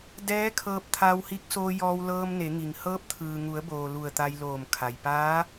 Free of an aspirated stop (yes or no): no